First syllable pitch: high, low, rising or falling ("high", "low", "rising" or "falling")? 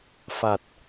low